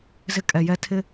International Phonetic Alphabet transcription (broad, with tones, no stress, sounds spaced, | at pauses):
z ɪ˦ kʼ ɛ˨ j ɛ˦ tʰ ɪ˦